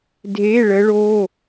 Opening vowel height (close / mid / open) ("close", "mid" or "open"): mid